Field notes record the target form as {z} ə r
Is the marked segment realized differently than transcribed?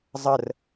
yes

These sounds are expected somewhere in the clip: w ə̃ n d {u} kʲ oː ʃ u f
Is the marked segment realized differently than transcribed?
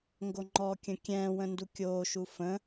no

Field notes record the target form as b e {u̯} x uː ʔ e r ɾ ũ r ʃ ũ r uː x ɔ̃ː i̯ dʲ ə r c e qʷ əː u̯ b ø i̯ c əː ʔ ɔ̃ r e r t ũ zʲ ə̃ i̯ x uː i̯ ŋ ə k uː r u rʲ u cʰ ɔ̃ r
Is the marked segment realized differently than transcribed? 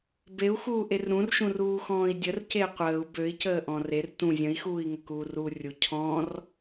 no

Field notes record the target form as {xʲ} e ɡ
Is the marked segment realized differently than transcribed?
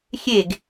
no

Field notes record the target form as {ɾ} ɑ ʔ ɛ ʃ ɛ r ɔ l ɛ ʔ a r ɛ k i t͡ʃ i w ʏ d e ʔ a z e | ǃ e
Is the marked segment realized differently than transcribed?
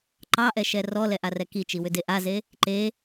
yes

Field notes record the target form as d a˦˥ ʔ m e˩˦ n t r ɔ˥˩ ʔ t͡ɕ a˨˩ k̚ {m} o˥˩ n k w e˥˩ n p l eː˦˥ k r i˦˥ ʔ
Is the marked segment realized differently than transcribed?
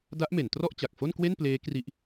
yes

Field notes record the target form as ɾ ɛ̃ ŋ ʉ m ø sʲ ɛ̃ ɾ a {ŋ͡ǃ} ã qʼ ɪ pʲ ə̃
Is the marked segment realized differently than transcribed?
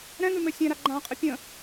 yes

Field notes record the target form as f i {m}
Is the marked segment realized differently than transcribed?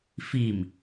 no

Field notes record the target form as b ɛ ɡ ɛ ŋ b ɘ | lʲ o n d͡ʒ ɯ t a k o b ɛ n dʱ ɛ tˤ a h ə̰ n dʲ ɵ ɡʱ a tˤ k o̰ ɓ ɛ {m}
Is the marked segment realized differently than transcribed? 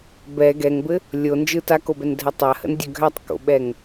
yes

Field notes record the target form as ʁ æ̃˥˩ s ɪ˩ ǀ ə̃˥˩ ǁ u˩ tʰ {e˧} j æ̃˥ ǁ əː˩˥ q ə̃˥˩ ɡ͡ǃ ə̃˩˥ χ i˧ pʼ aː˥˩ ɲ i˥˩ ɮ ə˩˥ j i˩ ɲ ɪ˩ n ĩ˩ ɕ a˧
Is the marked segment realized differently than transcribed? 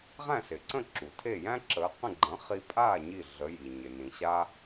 yes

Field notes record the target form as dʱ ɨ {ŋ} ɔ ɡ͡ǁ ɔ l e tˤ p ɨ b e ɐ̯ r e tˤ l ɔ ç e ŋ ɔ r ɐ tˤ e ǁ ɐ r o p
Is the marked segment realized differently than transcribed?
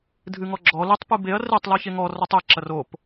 no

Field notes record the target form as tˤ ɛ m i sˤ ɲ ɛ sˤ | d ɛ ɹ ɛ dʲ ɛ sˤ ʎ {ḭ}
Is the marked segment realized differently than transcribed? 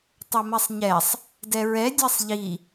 yes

